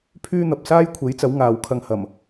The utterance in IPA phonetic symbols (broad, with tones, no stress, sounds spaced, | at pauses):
pʰ yː˥ n̪ ɐ˨ p̚ s aː˥ j kʷʰ e˨˥ j t͡s ɐ˨˥ w ŋ aː˨˧ w kʰ ɐ˧ ŋ h ɐ˨˩ m